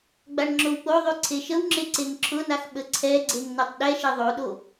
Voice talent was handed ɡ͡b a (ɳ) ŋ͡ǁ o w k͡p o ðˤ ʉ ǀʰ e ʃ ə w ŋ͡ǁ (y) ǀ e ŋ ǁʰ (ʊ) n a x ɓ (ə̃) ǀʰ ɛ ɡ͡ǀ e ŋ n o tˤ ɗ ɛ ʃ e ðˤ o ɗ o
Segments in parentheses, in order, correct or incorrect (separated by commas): correct, incorrect, correct, incorrect